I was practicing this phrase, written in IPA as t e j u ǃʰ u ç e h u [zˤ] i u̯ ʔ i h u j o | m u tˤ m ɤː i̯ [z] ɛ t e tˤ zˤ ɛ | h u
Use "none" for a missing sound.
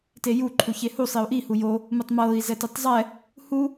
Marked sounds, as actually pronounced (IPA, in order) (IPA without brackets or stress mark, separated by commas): sˤ, z